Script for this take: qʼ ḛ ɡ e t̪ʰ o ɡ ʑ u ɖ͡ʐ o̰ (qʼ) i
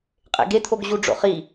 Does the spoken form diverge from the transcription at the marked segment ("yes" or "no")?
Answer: yes